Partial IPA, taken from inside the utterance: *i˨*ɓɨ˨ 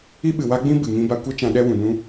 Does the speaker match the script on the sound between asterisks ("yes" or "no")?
no